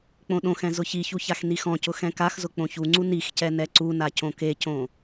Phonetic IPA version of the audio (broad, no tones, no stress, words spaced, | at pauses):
k͡põɗõxɛ̃ zʊçiçu çaxnixɔ̃cʊ xɛ̃kaxzʊ k͡põçuŋ͡ǀu nixcɛ nɛǀuna cõkecõ